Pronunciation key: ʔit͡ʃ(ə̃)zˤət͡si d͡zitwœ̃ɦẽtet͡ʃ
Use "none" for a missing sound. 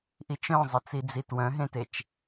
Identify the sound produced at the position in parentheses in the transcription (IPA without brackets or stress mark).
œ̃